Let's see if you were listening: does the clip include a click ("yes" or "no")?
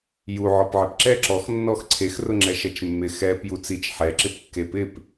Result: yes